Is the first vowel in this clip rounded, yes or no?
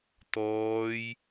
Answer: yes